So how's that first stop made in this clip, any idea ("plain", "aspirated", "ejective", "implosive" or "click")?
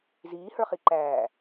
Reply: click